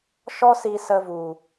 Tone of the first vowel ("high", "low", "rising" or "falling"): high